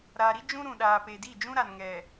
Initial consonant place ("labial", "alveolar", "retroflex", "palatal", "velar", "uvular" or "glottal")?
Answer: alveolar